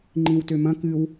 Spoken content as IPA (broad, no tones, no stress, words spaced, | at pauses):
ŋ͡ǃĩwtømɐ̃ kɨw